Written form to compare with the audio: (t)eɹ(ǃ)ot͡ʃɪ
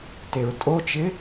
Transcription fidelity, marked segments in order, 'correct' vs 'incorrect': correct, incorrect

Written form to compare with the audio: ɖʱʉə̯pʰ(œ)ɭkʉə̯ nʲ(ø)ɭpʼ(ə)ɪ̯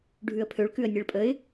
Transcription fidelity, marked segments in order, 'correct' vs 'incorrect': incorrect, incorrect, correct

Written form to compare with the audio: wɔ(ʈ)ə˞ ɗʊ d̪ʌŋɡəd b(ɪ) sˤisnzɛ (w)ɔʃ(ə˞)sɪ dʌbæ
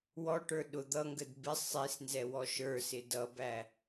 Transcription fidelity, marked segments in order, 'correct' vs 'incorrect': correct, correct, correct, correct

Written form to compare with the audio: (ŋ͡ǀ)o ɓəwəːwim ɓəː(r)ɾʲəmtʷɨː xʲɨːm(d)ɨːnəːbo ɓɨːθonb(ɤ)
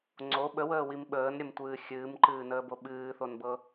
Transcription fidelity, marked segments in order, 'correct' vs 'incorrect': correct, incorrect, incorrect, correct

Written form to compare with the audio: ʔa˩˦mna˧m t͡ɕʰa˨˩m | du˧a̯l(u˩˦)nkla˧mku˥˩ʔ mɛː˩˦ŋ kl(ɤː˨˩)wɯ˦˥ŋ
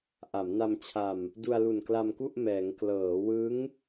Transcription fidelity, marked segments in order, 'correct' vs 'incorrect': incorrect, incorrect

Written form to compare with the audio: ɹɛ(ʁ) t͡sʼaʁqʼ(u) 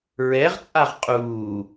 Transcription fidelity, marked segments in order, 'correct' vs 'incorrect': correct, incorrect

